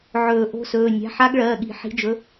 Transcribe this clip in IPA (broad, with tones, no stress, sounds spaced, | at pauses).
ʕ ɵː˨˩˦ ʔ o̤˧˥ s ɵː˩˧˩ nʲ a̤˩˧˩ ħ a˧˥ ɡ ɭ ɜː˩˧˩ ɠ i̤˨˩˦ ħ i̤˧˥ d͡ʒ ɵ˧˥